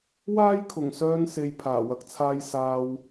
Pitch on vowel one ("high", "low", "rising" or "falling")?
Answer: high